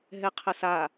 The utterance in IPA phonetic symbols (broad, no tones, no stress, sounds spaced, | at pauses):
ɦ ɛ qʰ ə s a